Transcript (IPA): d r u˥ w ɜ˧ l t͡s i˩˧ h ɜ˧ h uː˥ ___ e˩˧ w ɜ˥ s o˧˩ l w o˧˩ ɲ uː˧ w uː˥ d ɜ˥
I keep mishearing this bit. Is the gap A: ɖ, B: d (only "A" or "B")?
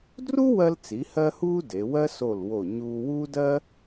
B